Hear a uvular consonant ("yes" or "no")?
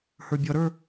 no